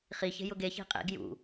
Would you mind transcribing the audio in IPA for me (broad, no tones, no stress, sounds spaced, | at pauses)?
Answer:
χ i ç e̤ j ʊ ɡ e ç i̤ qʼ ḛ ɡ j ṵ